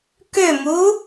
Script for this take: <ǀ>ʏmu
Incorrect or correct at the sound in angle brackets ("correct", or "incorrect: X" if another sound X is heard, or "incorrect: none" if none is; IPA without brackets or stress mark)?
incorrect: k